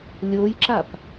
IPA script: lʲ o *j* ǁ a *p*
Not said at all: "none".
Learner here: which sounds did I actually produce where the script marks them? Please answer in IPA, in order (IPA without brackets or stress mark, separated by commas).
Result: j, p